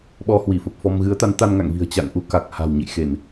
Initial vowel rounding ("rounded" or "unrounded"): rounded